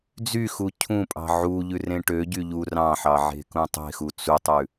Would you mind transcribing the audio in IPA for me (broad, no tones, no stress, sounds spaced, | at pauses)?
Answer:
d͡z y x u cʰ ũ pʼ ɑ̤ ʕ u ʎ ʉ r ẽ ʈ ø ɟ y ʎ u r ɑ̃ ħ ɑ ʕ e̤ k ũ tˤ e̤ x u t͡s u tˤ ʉ